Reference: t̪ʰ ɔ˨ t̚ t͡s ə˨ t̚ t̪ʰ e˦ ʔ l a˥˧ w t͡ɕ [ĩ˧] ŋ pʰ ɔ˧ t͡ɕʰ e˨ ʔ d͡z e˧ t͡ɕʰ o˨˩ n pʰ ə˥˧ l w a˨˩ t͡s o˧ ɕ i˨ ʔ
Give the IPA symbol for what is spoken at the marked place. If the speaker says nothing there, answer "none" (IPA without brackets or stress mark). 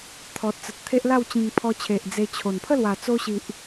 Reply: ĩ˧